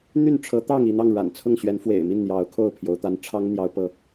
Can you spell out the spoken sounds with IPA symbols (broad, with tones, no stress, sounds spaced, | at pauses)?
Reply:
n̪ y˥˨ n ʈ͡ʂʰ ɤ˨˦ t̪ ɑ˥˨ ŋ i˥˨ n̪ ɑ˥˨ ŋ ɻ a̰˨˩ n t͡sʰ ʊ˥˨ ŋ ɕ ɥ ɛ˨˦ n f w ḛ˨˩ ɪ̯ m i˥˨ n n̪ j ɑ˨˦ ʊ̯ kʰ o˥˨ ʊ̯ pʰ j o˨˦ ʊ̯ t̪ a˦ n ʈ͡ʂʰ ɑ˦ ŋ n̪ j ɑ˦ ʊ̯ p ɤ˥˨